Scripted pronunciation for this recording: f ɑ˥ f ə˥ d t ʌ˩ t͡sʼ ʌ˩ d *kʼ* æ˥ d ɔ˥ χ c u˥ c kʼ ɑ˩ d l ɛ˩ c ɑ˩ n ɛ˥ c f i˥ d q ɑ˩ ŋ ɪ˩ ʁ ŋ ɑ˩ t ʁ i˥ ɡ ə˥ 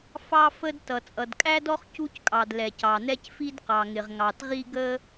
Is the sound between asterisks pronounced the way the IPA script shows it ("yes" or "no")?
yes